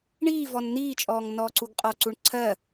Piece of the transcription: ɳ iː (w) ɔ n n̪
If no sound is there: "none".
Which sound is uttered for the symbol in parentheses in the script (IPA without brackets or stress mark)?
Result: v